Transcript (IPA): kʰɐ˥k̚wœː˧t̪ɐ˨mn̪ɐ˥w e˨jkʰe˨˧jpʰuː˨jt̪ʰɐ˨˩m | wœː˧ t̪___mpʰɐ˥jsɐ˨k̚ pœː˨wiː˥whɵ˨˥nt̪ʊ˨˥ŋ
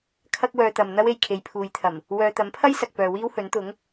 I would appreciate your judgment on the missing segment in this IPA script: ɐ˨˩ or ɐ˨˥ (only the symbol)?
ɐ˨˥